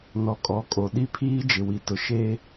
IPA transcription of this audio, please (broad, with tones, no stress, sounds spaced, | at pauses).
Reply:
n ɔ˨ kʼ ɔ˨˦ kʼ o˨ ɗ i˦ pʰ iː˦ d͡ʒ ɪ˨ w i˨ t ʊ˨ ʃ eː˦